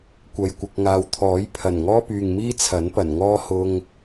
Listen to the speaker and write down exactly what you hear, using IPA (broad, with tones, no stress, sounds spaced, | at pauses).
kʷ ɐ˨ j kʷ ɪ˨ k̚ ŋ aː˨ w t̪ʰ ɔː˨˥ j pʰ ɐ˨˩ n ŋ ɔː˥ p yː˨ ŋ m iː˥ t͡sʰ ɐ˨˥ n p ɐ˨˩ n ŋ ɔː˥ h ʊ˧ ŋ